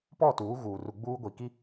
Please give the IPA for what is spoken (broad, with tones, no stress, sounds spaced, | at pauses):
p ɔ˦˨ t uː˨˦ ɣ uː˨ r u˨ ɡ͡b uː˦ ɡʷ i˨ k i˦